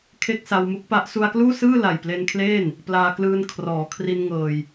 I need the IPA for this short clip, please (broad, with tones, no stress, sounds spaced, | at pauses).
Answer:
kʰ e˥˩ k̚ s a˧ w m u˦˥ k̚ p a˦˥ ʔ s u˧ a̯ k l uː˥˩ s ɯː˥˩ l a˨˩ j p l e˧ n kʰ l eː˥˩ n | p l aː˧ k l ɯː˧ n kʰ r ɔː˩˦ kʰ r i˧ n ŋ ɤː˧ j